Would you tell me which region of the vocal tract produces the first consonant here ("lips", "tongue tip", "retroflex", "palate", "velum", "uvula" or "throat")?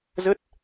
tongue tip